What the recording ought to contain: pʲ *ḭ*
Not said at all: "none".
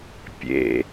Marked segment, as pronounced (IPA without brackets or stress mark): ḛ